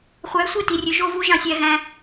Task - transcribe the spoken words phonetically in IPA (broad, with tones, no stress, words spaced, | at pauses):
χʷæ˨˦sʷe˦˨ti˨rʲø˨ ʒo˦˨vu˧ ʒɑ̃˦˨sʲæ˧ ɣæ̃˧